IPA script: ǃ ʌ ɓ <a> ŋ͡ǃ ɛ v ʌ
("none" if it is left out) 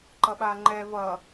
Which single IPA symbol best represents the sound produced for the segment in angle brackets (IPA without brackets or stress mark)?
a